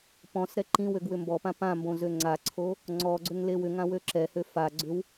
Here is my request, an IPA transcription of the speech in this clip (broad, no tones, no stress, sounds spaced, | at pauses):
p ɔ̃ s ɾ ɛ ǃ ĩ w ø ɡ w ʏ m b ɔ p ã p ã m b õ z ø ŋ͡ǀ a ǀʰ o | ŋ͡ǀ ɔ ɡ͡ǀ ø ŋ l e w ʏ ŋ ã w ø ǁ ɛ h ø f a ɡ͡ǀ ʏ w